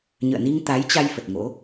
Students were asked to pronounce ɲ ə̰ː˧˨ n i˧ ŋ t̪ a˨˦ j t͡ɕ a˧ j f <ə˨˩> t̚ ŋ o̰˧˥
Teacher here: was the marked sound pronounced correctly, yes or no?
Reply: yes